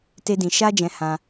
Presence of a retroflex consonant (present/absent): absent